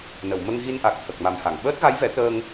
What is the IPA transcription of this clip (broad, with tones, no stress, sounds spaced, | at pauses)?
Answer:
n ə˨˩˨ w m ə˧ ŋ ɣ i˧ n ʔ a˨˩ k̚ t̪ʰ ə˨˩ k̚ m a˨˩ m h a˨˩˨ ŋ ɓ əː˦˥ t̚ ɣ a˧˥ j v ɛ˨˩˦ t̪ əː˧ ŋ